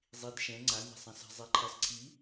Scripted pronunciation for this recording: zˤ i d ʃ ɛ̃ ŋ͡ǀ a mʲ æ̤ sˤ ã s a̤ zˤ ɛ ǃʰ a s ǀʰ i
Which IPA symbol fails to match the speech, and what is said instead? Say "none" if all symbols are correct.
none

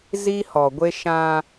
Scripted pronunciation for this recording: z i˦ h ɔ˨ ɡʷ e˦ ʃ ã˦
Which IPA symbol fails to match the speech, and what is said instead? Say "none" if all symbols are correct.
none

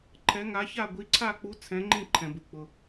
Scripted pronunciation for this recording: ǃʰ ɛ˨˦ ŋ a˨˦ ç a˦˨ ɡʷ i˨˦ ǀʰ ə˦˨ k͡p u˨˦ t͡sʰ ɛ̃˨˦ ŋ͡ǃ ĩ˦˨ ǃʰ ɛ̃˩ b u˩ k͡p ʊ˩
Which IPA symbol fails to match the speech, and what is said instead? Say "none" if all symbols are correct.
ə˦˨ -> a˦˨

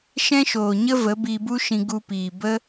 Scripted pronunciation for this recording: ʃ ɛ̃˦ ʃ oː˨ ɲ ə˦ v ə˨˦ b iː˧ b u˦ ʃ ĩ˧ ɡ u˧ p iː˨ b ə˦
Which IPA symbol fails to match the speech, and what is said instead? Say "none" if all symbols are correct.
none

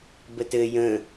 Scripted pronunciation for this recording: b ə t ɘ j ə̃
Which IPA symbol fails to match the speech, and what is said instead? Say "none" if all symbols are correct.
none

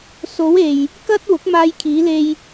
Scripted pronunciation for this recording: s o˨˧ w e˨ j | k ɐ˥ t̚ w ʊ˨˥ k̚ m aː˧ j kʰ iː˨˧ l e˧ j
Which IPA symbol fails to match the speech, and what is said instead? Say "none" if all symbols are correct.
none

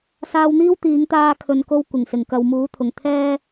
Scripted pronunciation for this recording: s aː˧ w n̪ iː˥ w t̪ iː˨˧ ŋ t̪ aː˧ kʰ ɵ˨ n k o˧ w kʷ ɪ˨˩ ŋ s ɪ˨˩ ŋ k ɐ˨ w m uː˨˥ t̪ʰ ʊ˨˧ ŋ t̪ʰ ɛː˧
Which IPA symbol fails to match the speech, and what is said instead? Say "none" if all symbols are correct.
ʊ˨˧ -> ʊ˨˩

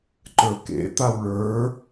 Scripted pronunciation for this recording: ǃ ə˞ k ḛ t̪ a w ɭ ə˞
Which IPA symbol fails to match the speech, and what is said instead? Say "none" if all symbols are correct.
none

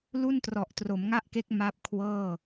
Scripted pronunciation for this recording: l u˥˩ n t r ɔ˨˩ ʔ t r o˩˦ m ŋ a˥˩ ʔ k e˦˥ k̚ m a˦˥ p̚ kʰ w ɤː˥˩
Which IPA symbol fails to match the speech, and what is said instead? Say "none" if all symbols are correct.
none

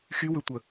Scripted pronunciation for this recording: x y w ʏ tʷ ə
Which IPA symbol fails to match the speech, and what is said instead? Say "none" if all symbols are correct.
none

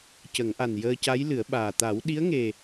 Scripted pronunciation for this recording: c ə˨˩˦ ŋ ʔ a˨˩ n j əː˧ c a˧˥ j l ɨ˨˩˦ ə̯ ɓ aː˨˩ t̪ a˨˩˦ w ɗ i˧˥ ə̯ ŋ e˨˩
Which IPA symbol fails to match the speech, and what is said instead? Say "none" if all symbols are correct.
none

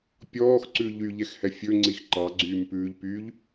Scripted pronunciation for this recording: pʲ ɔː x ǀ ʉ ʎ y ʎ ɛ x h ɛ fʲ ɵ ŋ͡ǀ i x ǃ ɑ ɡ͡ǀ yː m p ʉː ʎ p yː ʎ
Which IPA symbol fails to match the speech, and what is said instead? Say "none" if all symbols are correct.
none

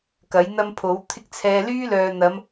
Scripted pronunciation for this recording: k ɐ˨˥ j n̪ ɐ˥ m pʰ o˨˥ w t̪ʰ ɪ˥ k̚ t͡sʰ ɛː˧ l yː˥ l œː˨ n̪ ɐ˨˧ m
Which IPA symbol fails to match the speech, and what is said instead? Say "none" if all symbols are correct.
none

